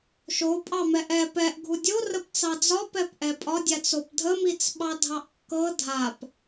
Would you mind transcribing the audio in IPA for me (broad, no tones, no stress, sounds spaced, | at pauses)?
ʃ o pʼ ɑ m ɛ ʔ ɛ p ɛ ʔ ɡʱ u dʲ o r ə p t͡s ɑ d͡z ɒ p ɛ p ʔ ɛ pʼ ɒ dʲ a t͡s o p dʱ ə m i t͡s ɓ ɑ dʱ ɑ ʔ kː ɤ dʱ a p